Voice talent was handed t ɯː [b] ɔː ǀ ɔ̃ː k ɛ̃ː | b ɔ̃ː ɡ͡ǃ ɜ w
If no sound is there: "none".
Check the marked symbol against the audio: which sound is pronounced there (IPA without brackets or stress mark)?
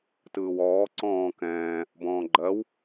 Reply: w